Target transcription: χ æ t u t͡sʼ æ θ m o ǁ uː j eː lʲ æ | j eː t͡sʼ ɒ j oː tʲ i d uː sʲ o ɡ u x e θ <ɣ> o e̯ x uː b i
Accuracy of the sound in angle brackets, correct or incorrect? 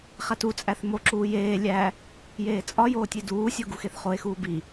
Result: incorrect: χ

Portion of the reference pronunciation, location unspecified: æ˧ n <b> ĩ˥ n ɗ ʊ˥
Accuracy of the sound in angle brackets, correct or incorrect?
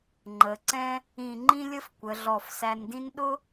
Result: incorrect: d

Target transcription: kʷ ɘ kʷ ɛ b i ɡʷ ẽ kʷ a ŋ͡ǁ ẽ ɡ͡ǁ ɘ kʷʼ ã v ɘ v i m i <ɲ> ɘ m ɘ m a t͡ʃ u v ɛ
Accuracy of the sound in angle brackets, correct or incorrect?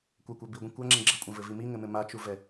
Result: incorrect: ŋ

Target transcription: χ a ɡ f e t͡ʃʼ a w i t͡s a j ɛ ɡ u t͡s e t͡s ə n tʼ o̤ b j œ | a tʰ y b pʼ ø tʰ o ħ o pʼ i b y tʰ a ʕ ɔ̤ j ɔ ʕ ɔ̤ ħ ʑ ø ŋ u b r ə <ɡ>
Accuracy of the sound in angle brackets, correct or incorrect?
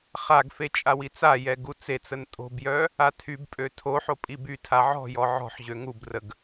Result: correct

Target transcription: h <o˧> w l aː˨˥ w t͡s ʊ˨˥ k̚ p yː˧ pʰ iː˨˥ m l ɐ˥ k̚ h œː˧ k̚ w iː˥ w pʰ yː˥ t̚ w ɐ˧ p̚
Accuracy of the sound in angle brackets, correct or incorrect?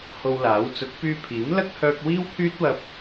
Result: correct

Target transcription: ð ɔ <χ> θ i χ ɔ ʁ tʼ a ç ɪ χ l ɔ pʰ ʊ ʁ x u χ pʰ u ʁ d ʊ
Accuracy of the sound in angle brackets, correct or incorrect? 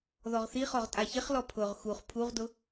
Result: incorrect: ʁ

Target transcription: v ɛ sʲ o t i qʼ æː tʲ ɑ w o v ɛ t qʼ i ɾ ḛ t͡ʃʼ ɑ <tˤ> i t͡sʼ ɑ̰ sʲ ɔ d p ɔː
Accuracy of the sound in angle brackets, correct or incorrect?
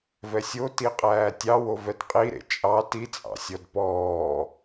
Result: incorrect: t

